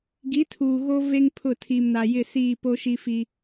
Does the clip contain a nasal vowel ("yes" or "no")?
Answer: no